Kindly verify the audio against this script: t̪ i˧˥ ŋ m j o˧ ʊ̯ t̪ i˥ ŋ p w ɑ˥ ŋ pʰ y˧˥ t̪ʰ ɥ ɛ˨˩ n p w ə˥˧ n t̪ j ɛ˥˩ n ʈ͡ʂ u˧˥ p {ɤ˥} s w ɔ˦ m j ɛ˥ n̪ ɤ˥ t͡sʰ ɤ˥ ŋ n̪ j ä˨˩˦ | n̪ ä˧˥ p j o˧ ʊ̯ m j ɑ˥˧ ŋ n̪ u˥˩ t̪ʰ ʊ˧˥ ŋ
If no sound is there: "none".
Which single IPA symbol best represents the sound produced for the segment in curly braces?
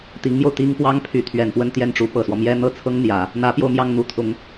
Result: ɤ˨˩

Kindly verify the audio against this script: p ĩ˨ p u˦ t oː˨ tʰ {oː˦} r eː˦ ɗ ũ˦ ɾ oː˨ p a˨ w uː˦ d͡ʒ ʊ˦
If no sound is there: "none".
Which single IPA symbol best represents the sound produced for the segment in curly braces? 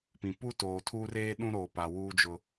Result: uː˦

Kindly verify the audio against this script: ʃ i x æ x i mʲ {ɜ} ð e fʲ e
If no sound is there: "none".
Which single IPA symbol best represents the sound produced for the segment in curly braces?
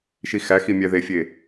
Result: æ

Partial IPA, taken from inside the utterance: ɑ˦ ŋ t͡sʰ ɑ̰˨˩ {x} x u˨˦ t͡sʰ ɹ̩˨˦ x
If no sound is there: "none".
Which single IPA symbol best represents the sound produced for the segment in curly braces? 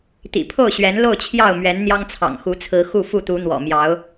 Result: ŋ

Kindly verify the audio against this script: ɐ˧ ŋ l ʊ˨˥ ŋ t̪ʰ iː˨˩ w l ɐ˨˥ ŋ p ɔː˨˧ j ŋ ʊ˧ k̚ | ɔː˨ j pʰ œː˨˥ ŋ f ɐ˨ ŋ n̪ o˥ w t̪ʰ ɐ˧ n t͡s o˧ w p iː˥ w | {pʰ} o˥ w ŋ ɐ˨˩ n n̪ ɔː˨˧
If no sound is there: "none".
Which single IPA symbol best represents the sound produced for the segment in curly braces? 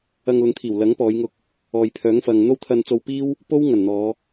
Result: p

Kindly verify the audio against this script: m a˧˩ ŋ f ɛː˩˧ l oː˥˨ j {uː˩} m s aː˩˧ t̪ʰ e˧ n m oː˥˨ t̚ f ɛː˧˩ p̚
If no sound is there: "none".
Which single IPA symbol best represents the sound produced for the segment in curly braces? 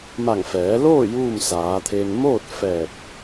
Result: uː˥˨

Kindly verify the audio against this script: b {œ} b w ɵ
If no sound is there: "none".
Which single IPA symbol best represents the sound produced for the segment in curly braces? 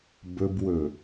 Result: ɵ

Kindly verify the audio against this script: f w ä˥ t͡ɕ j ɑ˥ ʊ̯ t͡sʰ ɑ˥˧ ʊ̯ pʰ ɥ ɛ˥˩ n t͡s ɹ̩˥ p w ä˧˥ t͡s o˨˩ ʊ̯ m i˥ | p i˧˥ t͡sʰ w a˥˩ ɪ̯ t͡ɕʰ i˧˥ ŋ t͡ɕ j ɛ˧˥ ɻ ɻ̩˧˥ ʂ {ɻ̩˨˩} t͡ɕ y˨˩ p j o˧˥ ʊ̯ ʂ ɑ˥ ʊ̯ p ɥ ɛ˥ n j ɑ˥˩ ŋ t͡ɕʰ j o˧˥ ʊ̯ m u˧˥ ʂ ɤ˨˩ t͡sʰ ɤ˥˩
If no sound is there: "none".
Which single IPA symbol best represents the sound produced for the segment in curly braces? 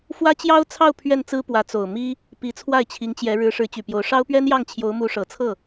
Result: ɻ̩˧˥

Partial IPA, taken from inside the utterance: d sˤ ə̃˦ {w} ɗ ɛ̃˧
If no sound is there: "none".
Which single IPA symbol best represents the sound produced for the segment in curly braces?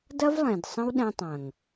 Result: w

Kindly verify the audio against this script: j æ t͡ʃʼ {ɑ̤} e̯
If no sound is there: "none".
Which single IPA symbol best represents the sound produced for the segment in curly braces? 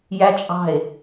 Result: ɑ̤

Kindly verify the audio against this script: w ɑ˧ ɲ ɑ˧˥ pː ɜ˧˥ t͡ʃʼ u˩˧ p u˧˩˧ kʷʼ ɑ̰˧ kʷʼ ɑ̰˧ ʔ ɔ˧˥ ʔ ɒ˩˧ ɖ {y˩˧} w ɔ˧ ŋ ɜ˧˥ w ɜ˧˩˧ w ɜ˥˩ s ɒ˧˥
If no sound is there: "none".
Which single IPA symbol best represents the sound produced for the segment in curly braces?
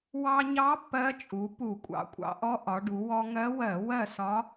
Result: u˩˧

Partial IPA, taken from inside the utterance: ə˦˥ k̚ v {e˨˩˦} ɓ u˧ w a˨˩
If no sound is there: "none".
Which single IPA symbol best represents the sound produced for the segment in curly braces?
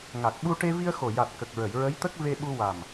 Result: e˧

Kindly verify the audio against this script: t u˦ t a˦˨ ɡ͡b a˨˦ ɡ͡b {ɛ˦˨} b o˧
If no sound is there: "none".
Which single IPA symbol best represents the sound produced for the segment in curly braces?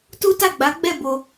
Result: ɛ˦˨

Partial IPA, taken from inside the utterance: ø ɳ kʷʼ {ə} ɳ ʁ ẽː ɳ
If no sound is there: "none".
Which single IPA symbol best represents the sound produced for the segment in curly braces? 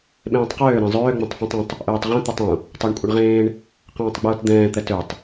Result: ə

